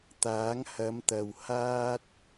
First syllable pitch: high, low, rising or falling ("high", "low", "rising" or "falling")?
rising